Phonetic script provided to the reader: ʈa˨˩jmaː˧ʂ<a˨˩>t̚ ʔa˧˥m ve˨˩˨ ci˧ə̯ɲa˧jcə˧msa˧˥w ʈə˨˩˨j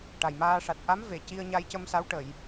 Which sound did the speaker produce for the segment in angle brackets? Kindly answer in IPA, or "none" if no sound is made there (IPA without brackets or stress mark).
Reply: a˨˩